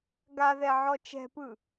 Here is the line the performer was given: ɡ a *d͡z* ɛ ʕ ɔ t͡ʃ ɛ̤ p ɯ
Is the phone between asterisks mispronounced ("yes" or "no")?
yes